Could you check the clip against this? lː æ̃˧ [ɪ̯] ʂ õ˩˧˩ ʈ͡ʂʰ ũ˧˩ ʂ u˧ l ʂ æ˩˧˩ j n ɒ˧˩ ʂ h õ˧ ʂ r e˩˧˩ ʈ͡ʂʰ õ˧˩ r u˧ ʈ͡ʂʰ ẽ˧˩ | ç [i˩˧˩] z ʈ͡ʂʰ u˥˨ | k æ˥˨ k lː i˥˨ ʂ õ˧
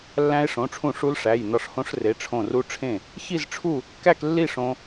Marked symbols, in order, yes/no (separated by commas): yes, no